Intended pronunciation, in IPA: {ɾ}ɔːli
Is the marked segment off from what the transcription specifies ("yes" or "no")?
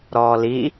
no